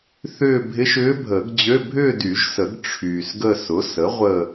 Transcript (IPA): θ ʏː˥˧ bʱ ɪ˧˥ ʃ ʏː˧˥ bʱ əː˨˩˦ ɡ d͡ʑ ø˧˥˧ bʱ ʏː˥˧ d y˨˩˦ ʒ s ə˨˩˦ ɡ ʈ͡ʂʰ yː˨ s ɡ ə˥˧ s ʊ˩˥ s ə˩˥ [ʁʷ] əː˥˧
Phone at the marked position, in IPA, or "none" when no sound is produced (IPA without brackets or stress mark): ʁʷ